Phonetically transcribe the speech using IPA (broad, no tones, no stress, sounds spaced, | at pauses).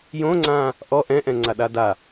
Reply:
j õ ŋ͡ǀ ãː | ʔ ɔ ʔ ɛ̃ ʔ ɛ̃ ŋ͡ǀ a ɗ a d a